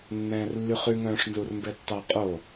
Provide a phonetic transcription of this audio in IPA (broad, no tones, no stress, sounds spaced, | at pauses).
nː ɛ̃ː r lː y χ ʉ ŋ œ̃ː ʂ n z u r m b ɛ tː ɑ qʼ o